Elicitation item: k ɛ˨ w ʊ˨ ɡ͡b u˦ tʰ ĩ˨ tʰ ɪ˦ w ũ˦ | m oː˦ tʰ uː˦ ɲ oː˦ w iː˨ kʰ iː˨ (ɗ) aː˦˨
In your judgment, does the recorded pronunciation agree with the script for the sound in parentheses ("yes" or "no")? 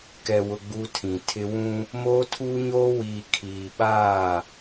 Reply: no